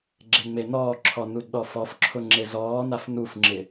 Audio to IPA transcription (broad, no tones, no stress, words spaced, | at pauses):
ɡ͡ǁeŋ͡menɔːǁʰɔ nudɗɔfɔfǁʰʊ ŋ͡ǁezɔːnaf nufŋ͡ǁɪ